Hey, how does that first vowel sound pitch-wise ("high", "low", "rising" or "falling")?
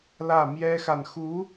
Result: falling